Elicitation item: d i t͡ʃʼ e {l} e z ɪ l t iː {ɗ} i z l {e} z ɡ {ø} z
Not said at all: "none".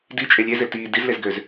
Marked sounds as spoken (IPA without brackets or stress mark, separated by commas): lʲ, d, e, ø